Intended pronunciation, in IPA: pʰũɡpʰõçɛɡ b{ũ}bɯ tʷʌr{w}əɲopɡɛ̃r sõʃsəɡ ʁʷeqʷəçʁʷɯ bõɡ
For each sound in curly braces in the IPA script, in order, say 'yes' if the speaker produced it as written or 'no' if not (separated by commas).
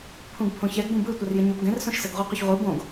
yes, no